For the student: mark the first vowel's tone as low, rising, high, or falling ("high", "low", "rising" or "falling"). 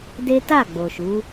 high